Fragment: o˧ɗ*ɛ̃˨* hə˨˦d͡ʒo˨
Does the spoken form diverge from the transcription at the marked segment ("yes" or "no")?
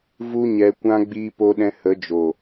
yes